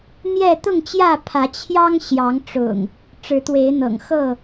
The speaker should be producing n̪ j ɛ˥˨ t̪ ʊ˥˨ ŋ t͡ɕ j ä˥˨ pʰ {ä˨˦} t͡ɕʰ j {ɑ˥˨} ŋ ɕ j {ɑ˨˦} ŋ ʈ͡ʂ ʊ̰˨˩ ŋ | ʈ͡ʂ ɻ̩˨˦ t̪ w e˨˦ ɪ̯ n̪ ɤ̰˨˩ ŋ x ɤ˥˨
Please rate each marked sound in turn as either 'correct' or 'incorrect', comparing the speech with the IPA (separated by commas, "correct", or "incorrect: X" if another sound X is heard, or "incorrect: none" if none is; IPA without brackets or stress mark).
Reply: correct, incorrect: ɑ˦, correct